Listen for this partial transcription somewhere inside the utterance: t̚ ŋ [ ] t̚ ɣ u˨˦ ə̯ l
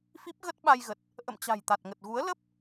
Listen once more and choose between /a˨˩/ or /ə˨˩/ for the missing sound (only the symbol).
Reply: ə˨˩